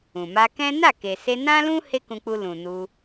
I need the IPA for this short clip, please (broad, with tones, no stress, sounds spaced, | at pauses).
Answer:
ũ˨ m a˧ k ɛ̃˦ n a˦˨ k e˨ s e˧ n ã˦ l ũ˦ h e˦ k ũ˧ k͡p u˧ l ũ˨ n u˧